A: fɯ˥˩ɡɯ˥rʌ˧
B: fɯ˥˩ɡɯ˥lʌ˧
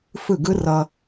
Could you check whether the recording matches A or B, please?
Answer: A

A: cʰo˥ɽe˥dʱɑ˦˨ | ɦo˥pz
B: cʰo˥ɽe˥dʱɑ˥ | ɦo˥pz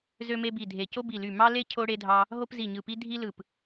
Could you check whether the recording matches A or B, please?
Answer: B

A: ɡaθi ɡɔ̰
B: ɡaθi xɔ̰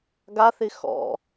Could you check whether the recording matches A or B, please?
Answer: B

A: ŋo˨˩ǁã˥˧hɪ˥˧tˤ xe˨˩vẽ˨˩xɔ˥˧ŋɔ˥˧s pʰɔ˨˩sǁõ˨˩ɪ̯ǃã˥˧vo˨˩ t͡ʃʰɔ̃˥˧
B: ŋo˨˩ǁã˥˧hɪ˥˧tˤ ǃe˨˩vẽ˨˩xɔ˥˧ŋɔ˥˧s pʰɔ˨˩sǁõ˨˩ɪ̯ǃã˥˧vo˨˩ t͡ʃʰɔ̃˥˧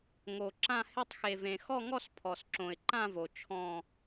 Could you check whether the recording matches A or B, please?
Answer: A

